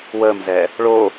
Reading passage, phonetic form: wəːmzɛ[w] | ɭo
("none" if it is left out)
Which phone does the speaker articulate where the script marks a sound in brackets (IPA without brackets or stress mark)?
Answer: none